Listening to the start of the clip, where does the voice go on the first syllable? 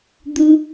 high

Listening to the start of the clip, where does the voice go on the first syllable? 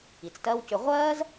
low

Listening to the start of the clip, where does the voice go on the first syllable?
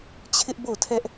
high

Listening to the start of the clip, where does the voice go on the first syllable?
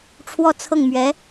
falling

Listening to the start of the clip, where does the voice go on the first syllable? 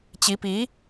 rising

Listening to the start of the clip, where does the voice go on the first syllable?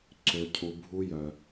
low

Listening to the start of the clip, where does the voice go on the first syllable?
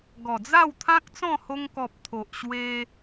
low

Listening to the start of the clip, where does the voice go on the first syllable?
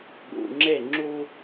low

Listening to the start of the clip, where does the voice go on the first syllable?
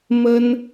high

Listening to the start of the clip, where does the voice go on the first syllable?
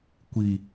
low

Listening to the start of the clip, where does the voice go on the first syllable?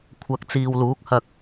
low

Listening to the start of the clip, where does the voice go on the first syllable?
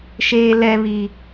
low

